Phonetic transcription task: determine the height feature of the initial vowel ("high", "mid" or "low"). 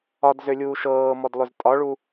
low